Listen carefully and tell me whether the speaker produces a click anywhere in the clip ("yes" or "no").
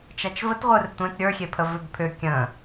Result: no